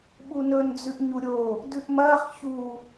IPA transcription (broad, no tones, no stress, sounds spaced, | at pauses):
ɓ u n ɵ n d͡z ʉ ʔ ɲ u ɾʲ o | d ʉ ʔ m ɐː χ ç u